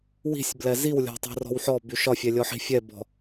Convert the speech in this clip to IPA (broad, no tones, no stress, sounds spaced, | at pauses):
w i̤ sʲ b l ɛ z i w lʲ ɔ̤ tˤ e̤ r ɔ̤ w ħ ɔ b y ʃ ɒ fʲ ɛ lʲ ɔ ħ i̤ fʲ ɛ b ɔ̤